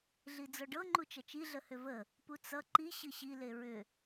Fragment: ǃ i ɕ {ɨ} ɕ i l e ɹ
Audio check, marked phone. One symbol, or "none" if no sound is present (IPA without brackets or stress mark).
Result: ɨ